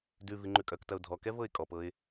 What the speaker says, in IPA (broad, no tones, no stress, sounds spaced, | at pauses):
d ʉ v i ŋ͡ǃ ʉ kʼ œ k t ɐ ʊ̯ dʱ ɔ k ɛ v ɤ ɪ̯ kʼ ɔ p ɤ ɪ̯